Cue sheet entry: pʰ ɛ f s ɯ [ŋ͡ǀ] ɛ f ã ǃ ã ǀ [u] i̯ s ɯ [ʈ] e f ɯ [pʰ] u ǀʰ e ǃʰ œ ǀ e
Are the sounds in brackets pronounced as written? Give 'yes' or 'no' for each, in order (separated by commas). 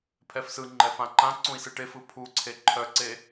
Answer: no, no, yes, yes